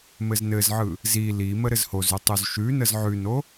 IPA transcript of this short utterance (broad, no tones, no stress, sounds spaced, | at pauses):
m ɘ z n ɘ z ʕ ɯ | z i l i m ə ɾ ɘ z h o z ʉ tˤ u z ʃ ʉ n ə z ʕ ʉ n o